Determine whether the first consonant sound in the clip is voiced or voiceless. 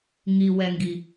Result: voiced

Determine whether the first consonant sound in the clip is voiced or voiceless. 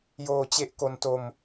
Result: voiced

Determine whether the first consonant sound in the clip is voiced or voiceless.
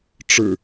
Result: voiceless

